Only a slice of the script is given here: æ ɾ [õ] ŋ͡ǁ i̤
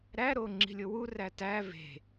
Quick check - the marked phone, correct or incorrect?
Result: incorrect: o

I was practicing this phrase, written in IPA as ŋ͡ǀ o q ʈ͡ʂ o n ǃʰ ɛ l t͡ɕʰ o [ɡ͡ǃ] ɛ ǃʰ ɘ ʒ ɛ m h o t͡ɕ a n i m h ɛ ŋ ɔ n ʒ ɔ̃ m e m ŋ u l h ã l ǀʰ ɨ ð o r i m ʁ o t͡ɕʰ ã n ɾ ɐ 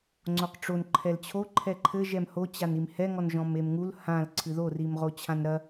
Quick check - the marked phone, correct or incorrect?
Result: incorrect: ǃʰ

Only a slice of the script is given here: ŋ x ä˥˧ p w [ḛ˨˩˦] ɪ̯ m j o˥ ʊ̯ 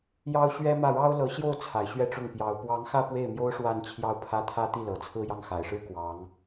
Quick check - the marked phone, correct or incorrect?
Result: incorrect: e˥˩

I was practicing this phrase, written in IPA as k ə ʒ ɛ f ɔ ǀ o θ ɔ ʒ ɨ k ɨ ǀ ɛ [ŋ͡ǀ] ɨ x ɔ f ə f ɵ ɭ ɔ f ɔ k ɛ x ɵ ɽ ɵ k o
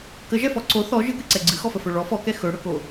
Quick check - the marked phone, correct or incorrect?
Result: incorrect: ɡ͡ǀ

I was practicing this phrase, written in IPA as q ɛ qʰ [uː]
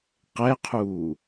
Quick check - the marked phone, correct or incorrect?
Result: correct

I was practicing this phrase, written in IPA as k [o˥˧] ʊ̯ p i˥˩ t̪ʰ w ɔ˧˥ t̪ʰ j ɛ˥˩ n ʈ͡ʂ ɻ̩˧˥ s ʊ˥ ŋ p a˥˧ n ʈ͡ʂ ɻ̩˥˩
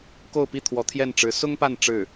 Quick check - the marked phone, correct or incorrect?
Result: correct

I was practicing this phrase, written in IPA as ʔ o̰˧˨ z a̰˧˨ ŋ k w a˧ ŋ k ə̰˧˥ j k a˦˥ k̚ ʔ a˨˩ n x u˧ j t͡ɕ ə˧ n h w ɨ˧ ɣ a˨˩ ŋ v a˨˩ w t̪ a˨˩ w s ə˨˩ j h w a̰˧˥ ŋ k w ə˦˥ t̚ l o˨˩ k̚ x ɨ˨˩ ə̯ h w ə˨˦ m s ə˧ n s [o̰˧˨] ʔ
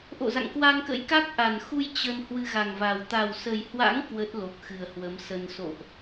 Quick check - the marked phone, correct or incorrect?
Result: correct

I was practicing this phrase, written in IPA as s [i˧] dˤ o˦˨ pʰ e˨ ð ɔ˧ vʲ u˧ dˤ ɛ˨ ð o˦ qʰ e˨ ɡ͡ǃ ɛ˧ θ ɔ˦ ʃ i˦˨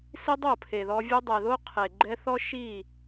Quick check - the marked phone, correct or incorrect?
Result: incorrect: i˦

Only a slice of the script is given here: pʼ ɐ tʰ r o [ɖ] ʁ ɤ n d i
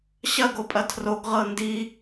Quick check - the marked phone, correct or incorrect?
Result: incorrect: ɡ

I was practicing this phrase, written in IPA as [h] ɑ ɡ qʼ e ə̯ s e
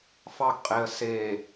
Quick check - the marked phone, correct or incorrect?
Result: incorrect: f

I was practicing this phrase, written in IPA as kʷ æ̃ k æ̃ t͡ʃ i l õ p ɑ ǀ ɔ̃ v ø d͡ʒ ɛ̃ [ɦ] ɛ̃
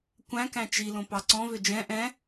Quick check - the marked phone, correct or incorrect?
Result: incorrect: ʔ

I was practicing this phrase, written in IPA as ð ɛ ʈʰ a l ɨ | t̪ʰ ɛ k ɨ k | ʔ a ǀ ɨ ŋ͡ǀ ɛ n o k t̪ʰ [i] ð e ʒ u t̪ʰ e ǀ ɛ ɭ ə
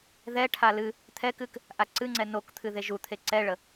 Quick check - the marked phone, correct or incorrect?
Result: incorrect: ɨ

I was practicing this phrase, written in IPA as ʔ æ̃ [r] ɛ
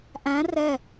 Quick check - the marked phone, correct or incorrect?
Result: correct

